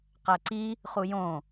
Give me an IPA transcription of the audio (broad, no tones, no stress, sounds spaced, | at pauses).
q æ ǀ i | χ u j õ